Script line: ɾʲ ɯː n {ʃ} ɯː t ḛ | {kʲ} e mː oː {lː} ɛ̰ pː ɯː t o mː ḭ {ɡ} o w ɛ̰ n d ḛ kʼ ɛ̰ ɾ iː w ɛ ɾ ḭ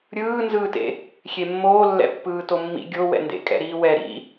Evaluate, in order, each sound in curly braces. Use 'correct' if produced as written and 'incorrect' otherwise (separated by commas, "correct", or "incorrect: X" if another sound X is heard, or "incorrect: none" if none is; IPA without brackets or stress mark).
incorrect: z, incorrect: xʲ, correct, incorrect: ɡʲ